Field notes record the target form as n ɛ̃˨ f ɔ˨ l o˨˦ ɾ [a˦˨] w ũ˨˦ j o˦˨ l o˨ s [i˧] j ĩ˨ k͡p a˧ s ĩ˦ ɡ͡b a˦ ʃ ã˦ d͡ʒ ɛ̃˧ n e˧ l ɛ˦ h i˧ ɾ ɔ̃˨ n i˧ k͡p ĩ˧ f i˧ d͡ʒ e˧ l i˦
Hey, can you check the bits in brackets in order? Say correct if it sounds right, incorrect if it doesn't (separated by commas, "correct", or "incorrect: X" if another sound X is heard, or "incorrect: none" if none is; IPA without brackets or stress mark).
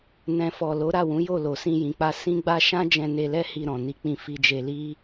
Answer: correct, incorrect: ĩ˧